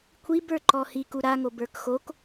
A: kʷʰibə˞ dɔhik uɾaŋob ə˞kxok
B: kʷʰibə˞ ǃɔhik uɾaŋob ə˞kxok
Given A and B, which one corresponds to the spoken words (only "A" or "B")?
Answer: B